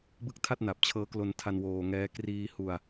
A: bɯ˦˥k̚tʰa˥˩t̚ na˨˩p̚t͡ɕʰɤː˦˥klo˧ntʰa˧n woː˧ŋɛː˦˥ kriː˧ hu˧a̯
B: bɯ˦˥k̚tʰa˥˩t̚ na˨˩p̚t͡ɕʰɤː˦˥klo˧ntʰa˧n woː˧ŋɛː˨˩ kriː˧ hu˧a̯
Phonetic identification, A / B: A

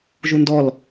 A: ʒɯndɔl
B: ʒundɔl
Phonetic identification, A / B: B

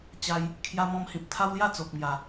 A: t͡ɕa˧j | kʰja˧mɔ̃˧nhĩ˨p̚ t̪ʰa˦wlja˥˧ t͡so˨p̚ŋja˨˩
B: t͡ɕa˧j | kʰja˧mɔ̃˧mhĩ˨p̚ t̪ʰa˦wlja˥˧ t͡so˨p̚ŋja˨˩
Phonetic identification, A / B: B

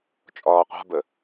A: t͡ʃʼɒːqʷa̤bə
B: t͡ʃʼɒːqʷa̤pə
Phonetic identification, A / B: A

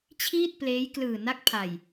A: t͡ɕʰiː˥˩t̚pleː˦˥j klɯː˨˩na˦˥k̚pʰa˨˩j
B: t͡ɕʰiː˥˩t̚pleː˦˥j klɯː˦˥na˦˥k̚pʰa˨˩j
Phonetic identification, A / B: A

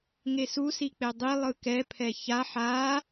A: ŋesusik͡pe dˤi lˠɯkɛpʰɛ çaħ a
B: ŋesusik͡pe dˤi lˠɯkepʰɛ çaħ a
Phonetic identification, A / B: A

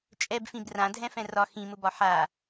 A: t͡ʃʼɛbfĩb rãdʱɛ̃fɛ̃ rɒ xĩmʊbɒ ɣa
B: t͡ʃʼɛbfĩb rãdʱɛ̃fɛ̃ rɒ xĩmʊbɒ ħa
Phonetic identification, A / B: B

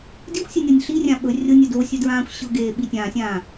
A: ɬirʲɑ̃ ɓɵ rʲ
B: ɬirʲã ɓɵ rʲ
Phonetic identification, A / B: B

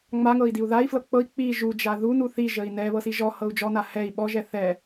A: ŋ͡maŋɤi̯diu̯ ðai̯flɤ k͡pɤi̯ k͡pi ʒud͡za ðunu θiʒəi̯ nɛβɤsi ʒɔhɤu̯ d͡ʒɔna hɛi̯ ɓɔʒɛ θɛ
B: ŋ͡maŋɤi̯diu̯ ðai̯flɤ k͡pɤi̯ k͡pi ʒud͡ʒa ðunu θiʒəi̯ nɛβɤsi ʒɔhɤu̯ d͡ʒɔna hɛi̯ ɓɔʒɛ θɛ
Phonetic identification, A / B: B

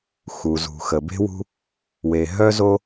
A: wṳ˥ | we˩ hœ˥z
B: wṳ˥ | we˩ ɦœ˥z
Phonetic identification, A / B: B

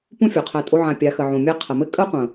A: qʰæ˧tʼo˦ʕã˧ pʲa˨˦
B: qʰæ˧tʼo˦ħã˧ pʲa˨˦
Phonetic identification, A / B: A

